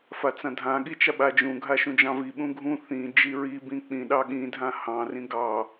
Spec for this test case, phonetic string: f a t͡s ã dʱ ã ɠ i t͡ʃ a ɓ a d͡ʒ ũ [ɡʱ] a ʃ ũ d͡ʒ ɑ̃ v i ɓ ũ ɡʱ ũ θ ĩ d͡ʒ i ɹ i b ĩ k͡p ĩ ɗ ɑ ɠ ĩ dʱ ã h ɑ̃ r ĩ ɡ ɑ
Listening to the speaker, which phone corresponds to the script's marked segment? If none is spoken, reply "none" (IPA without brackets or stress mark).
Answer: ɡʱ